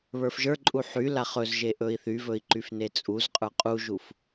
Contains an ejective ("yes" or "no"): yes